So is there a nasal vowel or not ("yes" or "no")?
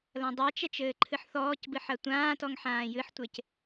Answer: yes